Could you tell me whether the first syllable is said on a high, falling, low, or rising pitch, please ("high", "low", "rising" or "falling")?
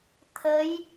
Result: rising